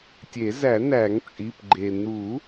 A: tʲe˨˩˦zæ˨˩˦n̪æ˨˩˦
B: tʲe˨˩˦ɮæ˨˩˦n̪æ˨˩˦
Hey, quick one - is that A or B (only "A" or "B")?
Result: A